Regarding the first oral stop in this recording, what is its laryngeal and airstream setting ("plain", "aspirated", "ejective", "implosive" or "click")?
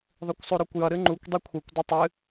plain